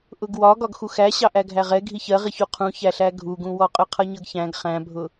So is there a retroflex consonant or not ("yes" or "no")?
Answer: no